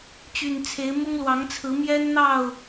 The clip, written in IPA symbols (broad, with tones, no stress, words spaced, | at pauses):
t͡ɕy˨˩nt͡sʰe˨˦ɪ̯ mʊ˦ŋlwɑ˨˦ŋt͡sʰɹ̩˨˦ mjɛ˦nn̪ɑ˥˨ʊ̯